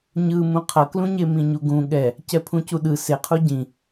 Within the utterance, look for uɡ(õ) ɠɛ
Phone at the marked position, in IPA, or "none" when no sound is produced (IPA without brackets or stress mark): ũ